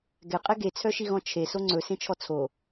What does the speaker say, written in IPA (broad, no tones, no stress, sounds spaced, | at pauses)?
ɡ ɛ qʼ ɛ ɡ e t͡sʰ œ ʃ i ɣ ɔ̃ t͡ʃʰ e s o ŋ͡ǀ ɵ s ẽ t͡ʃʰ ɔ t͡sʰ o